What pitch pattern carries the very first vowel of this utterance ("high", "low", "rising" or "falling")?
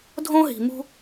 high